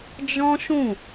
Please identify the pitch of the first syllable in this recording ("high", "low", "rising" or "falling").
high